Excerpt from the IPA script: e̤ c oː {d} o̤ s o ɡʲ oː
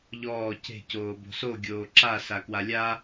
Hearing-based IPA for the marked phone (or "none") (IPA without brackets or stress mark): b